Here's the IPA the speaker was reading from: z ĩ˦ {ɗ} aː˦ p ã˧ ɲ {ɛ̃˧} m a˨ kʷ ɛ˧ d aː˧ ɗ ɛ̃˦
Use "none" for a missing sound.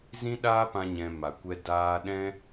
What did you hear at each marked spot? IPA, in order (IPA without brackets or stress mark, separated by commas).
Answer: ɗ, ɛ̃˧